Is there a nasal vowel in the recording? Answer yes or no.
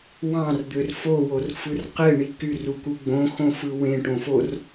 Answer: yes